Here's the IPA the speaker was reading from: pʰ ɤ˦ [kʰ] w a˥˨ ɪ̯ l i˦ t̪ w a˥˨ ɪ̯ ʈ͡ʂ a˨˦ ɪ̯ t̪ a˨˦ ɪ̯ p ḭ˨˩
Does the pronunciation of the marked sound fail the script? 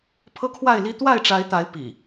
no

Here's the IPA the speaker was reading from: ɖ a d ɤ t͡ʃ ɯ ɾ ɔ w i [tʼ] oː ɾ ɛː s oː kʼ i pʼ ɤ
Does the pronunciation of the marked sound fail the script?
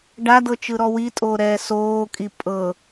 no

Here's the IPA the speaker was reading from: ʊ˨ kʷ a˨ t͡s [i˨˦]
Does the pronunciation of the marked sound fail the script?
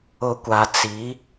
no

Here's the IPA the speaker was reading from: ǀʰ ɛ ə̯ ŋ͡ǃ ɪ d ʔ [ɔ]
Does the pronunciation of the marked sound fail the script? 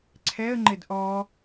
no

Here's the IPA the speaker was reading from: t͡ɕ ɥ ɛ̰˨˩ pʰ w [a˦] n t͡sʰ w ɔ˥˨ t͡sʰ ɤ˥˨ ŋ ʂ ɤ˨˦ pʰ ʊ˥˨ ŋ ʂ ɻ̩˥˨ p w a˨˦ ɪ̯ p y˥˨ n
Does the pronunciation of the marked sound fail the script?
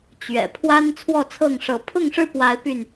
no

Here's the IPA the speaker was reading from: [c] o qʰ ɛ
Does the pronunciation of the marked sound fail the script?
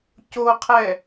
no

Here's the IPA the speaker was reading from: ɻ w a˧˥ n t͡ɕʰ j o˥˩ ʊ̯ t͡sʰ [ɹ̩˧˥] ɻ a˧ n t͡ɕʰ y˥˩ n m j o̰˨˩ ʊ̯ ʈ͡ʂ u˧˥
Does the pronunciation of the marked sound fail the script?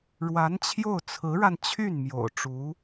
no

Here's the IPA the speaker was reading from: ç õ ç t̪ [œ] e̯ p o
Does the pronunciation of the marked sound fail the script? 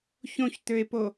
yes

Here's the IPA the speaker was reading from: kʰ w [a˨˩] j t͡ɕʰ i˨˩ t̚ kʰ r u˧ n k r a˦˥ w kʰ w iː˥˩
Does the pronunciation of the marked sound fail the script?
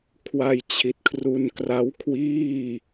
yes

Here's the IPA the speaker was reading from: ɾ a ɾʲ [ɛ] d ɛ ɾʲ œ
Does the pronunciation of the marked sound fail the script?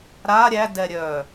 yes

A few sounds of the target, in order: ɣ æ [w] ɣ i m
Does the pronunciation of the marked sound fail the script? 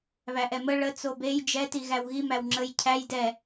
no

